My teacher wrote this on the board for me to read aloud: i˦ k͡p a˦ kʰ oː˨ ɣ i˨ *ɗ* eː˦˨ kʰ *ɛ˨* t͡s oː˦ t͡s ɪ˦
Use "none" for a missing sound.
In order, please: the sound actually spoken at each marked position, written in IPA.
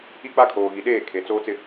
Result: ɗ, e˨

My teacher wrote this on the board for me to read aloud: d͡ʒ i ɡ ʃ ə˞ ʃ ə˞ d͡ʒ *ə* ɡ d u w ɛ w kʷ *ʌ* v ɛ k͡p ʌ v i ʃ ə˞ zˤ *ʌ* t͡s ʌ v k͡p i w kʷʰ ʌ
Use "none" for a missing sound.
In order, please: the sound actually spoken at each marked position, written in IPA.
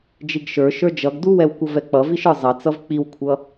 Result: ʌ, ʌ, ʌ

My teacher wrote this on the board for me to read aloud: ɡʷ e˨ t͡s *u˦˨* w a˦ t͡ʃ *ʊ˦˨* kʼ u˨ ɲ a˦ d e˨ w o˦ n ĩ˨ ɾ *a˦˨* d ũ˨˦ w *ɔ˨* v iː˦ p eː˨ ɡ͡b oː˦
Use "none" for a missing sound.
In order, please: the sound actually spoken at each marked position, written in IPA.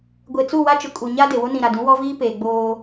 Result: u˦˨, ʊ˨, a˨, ɔ˦

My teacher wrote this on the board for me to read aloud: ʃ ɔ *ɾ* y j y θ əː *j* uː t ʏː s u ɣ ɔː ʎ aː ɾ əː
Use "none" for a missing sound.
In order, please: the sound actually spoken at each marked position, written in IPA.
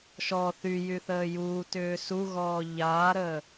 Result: θ, j

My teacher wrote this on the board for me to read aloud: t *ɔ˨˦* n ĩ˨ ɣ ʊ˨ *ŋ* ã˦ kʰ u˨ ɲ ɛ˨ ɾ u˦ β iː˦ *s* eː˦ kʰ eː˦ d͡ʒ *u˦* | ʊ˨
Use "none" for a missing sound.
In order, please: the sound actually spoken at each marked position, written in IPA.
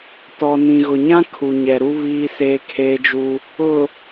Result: ɔ˨, ɲ, s, u˦

